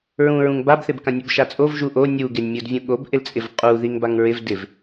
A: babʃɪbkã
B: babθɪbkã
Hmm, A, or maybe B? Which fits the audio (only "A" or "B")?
B